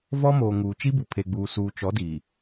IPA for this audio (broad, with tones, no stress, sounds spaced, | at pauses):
v ɔ˦ m oː˨ ŋ uː˨ t͡ʃ i˦ b u˨ pʰ e˨ ɡ͡b uː˨ s uː˨ t͡ʃ ɔ˨˦ d i˨